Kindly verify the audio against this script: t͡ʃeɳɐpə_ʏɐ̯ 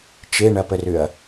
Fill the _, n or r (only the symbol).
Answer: r